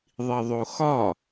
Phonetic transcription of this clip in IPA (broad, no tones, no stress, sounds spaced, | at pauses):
ðˤ i ðˤ o x ɒ